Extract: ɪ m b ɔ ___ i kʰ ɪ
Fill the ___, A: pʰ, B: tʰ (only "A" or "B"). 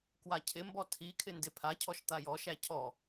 B